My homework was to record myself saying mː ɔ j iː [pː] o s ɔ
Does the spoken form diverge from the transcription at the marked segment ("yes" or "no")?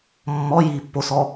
no